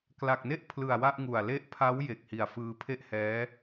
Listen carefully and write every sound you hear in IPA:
kla˨˩k̚ne˥˩ʔ pʰlɯ˨˩a̯ wa˥˩ʔŋu˨˩a̯ le˦˥ʔpʰa˦˥w je˨˩k̚hi˨˩a̯ fɯː˧pʰe˥˩ʔhɛː˦˥

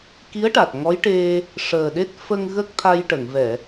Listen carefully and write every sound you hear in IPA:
ki˧˥ə̯ʈa˨˩t̚ ŋɔ˧˥jʈe˧ | ʂəː˨˩ɗe˦˥t̚ fə˧ŋ ɣə˦˥k̚ t̪ʰa˧jʈə˨˩˨ŋvɛ˨˩˨

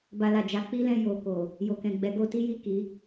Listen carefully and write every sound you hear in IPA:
ba˧la˨d͡ʒa˧ k͡pi˦lɛ̃˧ jo˨ko˨ | jo˨kɛ̃˨ ɡ͡bɛ˨˦ɡo˧ti˦ji˦˨ ki˨˦

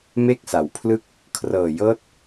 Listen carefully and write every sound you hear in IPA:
me˥˩k̚sa˩˦wpʰlɯ˥˩k̚ | kʰrɤː˨˩jɤː˥˩t̚

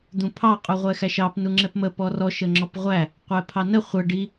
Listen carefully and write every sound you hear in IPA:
d̪ũpʰɑ qʼuʁʷɛxæʃɑp nuŋ͡ǁɛpmə pɔrɔ ʃəŋ͡ǁɔpʁʷæ | qʷɛpʰɑnə χʷə ɖi

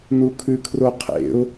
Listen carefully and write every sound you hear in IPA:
nukʰʉkʰroqʰḛʊ̯

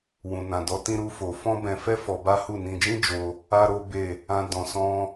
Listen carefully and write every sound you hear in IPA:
wũ˨nã˨dɔ˨˦ tĩ˦ɾu˦fo˧ fɔ̃˦bɛ̃˧fɛ˦ fɔ˧ba˦hu˦˨ nĩ˧d͡ʒĩ˦d͡ʒo˧ | a˦ɾo˦be˦˨ | ã˧ dɔ̃˨sɔ̃˧

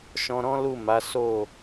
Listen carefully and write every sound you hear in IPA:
ʃɔ̃˧ɾɔ̃˦lu˦˨ma˨˦ so˦˨

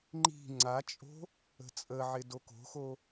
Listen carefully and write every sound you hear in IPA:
ŋ͡ǃi̤ ŋ͡ǀat͡ʃʼo̤ | ə̤t͡sʼəʕɪ doko̤xo

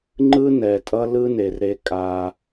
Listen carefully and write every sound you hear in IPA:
ŋ͡ǃɯ˦nɛ˨ tʼʌ˦lɯ˦ne˨r ɾe˦kʼa˦

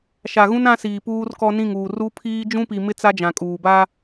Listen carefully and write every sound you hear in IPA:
ʃa˨ɣũ˦n ã˦siː˨puː˦r kɔ˦nĩ˦˨ŋuː˨r u˦pʰiː˦ d͡ʒũ˦pi˨mɪ˦ t͡sa˦d͡ʒã˨kʼuː˨ ba˦

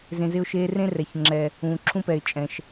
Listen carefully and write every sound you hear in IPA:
zẽ˧zɪ˦ʊ̯ʃeː˦ rẽ˦rɛ˨çŋ͡ǁɛ˨ | ũː˨ǁʰũ˦pɛ˨ɪ̯ t͡ʃʼɛ̃˨ʃ

